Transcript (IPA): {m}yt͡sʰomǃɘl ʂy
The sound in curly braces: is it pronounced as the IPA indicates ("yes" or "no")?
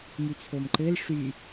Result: yes